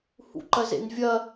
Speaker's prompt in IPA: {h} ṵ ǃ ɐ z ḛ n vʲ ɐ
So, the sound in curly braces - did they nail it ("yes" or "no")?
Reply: yes